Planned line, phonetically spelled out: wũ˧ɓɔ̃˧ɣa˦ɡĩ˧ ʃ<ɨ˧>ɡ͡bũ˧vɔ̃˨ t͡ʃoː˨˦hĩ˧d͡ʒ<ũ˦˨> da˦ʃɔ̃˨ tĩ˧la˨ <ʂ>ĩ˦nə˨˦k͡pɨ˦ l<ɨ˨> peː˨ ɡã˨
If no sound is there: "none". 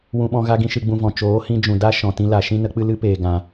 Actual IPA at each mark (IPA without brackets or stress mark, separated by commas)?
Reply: ɨ˧, ũ˨, ʃ, ɨ˦